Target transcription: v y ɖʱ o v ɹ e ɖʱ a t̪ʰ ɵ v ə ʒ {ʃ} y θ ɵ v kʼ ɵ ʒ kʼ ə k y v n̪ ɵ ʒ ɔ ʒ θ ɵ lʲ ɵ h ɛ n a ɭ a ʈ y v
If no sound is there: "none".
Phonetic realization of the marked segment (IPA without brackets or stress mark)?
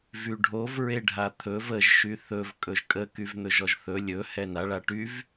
ʃ